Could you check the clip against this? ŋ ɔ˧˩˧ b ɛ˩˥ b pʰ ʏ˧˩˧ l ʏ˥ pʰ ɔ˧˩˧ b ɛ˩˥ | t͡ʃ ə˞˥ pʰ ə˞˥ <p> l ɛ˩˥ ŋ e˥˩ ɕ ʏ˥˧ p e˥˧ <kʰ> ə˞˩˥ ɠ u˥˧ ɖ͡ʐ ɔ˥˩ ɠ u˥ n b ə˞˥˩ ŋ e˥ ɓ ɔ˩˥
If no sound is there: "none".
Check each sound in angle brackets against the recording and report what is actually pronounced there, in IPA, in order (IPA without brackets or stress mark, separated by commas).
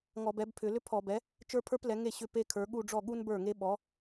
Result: p, kʰ